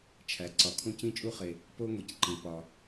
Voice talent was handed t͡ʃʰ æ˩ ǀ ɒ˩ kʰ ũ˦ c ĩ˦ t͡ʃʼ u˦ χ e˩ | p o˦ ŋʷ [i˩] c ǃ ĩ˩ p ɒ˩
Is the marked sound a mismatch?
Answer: no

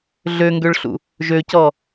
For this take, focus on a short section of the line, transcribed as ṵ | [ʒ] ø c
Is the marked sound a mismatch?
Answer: no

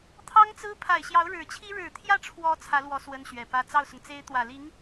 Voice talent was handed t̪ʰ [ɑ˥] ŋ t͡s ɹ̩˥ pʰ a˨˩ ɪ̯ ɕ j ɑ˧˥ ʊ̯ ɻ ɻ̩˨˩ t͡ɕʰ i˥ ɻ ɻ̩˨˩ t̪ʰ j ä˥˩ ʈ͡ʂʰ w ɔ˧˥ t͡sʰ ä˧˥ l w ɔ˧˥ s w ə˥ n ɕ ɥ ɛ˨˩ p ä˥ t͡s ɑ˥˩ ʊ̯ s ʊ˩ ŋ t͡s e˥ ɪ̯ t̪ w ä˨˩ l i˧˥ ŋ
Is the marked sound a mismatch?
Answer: no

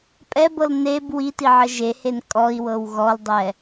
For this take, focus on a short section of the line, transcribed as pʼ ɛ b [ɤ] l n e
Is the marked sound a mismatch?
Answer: no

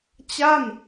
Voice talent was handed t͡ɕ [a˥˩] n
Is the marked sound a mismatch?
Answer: no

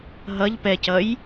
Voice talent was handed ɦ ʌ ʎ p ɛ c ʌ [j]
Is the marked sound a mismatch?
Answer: no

